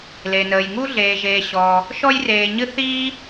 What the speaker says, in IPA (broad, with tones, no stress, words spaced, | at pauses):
le˩nəː˩jŋu˧ ɮeː˩ʒeː˩ɕɔː˩ | ʃɔ˧jreː˩ɲɨ˧ θiː˥